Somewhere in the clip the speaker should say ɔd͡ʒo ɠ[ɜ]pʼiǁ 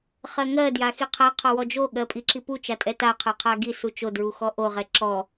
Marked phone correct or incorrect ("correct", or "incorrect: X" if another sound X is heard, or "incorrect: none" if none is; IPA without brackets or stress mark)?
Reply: correct